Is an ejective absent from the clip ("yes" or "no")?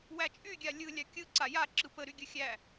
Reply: no